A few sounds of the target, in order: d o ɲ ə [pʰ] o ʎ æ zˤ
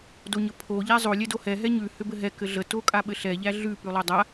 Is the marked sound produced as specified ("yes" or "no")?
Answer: yes